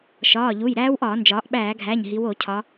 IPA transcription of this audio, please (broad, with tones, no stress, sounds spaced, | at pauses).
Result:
ʃ ɒː˩˧˩ ʎ u˩˧˩ j ɾ æː˦˥ w ʔ ɒː˧˩˧ n d͡ʒ ɒː˩˧ ʔ ɓ æː˧˩˧ ɡʱ æ˩˧˩ ɲ ɦ i˩˧ w o˧˩˧ cʰ ɒ˩˧